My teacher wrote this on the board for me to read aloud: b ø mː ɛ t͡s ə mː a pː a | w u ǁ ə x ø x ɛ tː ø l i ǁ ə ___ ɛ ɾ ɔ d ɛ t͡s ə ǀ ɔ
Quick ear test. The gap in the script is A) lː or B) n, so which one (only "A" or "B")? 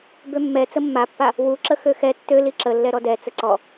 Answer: A